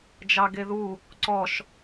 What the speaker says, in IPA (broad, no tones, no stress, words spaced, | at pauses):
d͡ʒɑɡeðu | ǀɔʃ